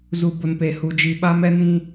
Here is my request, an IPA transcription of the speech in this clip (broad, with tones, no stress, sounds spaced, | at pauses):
z u˦ b ʊ˦ n p e˦ h u˦ d͡ʒ i˦ ɓ a˦ m ɛ˦ n ĩ˦